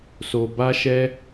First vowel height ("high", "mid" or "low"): mid